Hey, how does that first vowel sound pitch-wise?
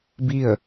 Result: falling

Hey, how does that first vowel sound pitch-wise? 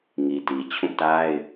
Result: low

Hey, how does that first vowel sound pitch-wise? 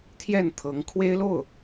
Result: falling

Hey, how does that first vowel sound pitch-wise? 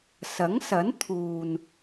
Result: rising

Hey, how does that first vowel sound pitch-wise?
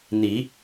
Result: rising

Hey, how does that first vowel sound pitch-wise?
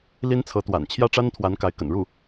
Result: high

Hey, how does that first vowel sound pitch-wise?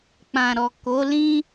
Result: low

